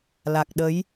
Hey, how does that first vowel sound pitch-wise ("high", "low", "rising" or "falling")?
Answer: low